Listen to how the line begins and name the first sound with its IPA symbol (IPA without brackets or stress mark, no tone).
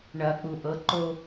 ɳ